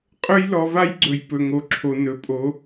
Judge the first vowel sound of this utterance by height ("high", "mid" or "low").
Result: mid